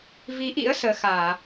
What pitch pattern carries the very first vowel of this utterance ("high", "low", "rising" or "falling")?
rising